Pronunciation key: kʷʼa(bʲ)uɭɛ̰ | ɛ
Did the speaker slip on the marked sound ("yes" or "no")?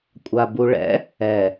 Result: yes